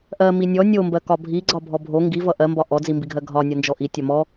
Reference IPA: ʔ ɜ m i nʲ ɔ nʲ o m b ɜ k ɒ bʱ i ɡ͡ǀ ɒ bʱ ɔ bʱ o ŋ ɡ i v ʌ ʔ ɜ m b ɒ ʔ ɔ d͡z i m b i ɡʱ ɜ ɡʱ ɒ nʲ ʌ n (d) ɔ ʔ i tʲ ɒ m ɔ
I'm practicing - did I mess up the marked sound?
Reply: yes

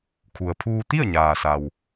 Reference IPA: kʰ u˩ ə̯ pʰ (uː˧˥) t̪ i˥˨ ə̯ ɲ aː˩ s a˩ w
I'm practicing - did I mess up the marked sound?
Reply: yes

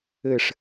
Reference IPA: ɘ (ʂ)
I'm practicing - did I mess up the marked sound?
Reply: no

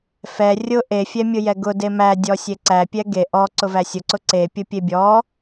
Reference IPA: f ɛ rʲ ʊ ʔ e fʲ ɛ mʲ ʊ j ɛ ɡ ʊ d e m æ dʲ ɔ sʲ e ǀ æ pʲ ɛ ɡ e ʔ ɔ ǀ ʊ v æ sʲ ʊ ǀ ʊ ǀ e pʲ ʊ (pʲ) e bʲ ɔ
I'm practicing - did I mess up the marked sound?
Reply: no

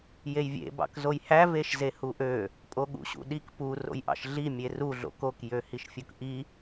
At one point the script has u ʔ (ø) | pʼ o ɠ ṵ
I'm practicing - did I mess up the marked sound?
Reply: no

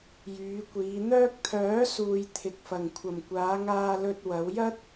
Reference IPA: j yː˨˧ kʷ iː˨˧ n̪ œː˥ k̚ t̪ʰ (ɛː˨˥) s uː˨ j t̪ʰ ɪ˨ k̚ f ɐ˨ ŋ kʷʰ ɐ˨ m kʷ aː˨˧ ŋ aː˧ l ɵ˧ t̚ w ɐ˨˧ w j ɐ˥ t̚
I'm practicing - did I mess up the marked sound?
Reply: yes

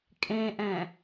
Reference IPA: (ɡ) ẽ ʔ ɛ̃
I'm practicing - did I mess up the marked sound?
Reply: yes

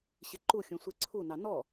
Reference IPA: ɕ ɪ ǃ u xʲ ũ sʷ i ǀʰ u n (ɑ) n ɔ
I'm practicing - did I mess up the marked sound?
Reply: no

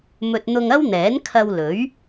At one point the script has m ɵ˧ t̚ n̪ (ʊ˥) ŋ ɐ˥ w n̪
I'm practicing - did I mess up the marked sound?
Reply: yes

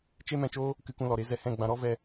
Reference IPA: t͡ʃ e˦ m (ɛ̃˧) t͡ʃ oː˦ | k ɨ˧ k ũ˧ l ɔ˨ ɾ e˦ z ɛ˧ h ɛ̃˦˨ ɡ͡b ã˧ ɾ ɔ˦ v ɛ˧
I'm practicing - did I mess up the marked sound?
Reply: no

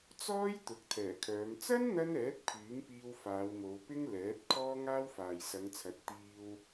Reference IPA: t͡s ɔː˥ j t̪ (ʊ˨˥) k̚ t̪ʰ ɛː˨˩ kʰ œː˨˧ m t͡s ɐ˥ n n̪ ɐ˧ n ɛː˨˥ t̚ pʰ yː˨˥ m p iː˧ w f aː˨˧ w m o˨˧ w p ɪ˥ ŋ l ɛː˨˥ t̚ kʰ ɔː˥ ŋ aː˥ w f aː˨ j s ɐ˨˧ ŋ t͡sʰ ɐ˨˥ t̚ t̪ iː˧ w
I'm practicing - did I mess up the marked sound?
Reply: no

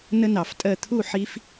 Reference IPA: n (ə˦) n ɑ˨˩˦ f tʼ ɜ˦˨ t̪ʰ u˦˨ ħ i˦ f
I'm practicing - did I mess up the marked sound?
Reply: no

